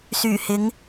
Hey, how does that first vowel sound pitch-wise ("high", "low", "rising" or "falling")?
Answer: low